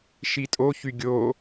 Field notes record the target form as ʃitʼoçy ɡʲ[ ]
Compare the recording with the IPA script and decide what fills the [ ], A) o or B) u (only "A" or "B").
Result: A